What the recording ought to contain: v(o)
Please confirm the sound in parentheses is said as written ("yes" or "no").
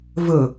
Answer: no